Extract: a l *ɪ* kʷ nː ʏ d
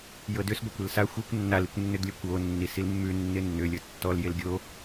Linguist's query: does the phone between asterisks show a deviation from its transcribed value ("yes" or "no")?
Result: yes